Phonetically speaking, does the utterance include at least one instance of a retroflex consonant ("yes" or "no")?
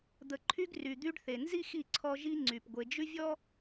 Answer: yes